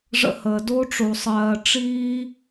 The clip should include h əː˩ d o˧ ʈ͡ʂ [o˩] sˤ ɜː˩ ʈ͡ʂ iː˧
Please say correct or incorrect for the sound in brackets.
correct